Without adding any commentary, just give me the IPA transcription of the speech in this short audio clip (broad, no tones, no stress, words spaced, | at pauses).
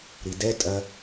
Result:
ɾidɛ tʼɐ